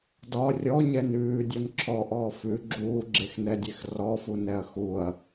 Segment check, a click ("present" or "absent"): present